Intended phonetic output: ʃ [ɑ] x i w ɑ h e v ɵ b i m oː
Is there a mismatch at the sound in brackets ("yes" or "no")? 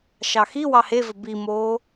no